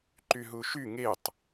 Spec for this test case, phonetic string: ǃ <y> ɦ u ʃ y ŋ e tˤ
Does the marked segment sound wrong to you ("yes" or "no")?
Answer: no